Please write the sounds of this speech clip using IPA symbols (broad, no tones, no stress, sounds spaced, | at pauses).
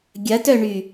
ɡʲ ɐ t œ ɳ y